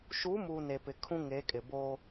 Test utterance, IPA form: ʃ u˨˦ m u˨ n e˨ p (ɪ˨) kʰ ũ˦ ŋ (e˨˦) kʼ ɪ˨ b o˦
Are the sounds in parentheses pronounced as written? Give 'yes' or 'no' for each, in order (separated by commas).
yes, yes